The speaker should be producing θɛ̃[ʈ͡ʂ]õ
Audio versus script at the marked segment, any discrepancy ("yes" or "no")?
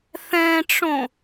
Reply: no